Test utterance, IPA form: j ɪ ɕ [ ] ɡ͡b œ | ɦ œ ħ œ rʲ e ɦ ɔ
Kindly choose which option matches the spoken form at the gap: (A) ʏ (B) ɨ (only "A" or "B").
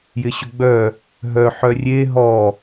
A